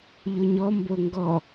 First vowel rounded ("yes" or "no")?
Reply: yes